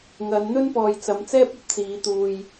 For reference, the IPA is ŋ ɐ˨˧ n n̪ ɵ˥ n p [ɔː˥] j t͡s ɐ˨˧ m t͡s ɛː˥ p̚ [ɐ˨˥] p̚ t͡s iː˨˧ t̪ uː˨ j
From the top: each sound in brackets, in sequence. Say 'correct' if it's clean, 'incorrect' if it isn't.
incorrect, incorrect

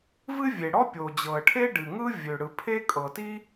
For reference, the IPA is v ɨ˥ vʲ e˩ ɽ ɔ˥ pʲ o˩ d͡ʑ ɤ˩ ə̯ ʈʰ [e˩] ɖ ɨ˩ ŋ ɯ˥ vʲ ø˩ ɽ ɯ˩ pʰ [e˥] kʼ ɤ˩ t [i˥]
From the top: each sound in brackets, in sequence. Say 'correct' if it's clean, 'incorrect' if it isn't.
incorrect, correct, correct

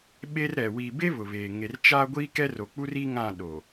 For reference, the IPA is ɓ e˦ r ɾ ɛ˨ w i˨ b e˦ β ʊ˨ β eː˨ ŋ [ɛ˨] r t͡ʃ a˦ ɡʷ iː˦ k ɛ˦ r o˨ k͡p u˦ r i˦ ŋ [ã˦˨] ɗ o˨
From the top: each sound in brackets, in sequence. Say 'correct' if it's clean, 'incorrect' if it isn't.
incorrect, correct

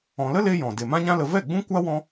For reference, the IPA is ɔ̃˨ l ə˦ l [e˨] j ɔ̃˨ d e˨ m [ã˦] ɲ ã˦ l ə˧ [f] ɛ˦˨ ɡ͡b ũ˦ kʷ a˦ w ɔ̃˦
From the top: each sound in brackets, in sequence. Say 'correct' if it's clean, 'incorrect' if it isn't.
incorrect, correct, incorrect

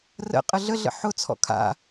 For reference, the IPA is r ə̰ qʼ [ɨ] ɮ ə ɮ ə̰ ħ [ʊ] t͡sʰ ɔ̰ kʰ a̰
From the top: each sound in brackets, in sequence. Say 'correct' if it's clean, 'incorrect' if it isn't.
incorrect, correct

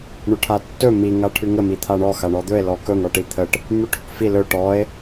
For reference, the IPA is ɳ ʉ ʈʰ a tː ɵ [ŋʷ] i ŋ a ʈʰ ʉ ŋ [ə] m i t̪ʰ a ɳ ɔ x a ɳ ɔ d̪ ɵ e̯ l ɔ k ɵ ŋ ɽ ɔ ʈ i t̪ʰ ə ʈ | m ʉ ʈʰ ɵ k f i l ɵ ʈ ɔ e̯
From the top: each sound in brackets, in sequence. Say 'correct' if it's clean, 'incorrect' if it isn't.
incorrect, correct

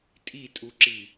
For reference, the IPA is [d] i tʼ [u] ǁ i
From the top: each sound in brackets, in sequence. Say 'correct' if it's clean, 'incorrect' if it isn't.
incorrect, correct

